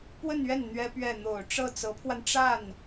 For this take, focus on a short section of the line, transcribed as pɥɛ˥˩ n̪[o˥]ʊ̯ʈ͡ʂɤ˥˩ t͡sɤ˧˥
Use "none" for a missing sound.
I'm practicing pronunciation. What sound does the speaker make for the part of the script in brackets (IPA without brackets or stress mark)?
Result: o˨˩